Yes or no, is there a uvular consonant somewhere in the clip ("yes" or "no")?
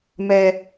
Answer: no